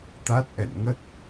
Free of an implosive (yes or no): yes